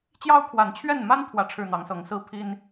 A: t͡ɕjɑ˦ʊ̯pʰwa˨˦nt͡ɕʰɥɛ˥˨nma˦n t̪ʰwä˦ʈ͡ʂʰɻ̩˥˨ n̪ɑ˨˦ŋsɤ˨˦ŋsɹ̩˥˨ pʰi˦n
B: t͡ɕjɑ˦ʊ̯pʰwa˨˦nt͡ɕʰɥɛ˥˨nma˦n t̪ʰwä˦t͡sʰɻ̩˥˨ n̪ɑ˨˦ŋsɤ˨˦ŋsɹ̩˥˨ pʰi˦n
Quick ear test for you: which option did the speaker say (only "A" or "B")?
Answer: A